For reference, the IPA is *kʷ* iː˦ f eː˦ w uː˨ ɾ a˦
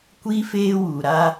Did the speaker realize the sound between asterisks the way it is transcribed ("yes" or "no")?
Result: yes